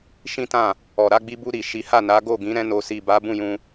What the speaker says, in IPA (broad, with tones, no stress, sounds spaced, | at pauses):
ʃ ĩ˦ t ã˦˨ | ɔ˨ ɾ a˧ ɡ͡b i˧ b u˧ ɾ i˨ ʃ i˨˦ h a˦˨ n a˨˦ ɡ o˦˨ ɡ ĩ˨˦ ɾ ɛ̃˦ n o˧ s i˨ b a˨˦ b ũ˦˨ j ũ˧